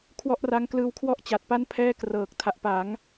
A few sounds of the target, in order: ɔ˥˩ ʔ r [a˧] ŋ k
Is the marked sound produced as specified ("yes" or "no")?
no